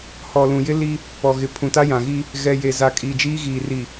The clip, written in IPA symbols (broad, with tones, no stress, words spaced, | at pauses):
hɔ˨lũ˨jɪ˦ li˦ | pɔ˨ɣɪ˨ pʰũ˨ta˦jã˨ɣi˦ | ɣɛ˨ je˨za˨ kʼiː˨d͡ʒiː˦ɣiː˨ ri˨